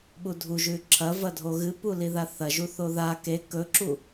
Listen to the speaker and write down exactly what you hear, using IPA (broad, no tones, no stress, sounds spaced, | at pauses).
ɓ u dʱ u ʒ ʉ ǁʰ ɐ v ɐ dʱ o ɣ ɨ p u l i ð a θ ɐ ʒ u θ o ð a k e k ɵ ǁ u